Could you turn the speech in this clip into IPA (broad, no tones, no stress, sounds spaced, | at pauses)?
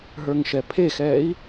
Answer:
ɦ ə˞ ŋ ʃ ɛ pʰ e x ɛː i̯